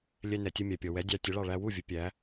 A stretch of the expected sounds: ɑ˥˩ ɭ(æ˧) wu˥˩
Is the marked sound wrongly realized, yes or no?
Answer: no